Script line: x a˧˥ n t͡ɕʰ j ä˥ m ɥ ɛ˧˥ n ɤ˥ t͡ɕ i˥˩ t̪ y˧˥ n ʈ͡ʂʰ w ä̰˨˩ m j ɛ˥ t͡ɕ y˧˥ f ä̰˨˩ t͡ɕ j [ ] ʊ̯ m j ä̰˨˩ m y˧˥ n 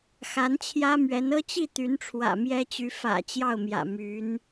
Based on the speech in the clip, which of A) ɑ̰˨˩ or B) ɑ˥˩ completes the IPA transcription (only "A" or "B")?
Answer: B